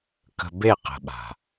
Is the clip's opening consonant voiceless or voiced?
voiceless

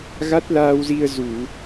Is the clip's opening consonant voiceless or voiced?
voiced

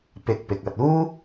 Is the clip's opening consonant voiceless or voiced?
voiceless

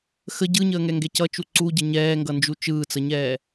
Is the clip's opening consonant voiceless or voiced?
voiceless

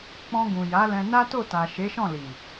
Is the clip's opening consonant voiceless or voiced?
voiceless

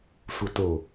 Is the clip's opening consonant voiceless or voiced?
voiceless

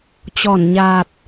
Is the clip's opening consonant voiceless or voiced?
voiceless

